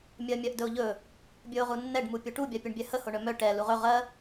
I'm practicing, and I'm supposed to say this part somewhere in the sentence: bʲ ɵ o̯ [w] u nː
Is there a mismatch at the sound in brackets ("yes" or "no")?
yes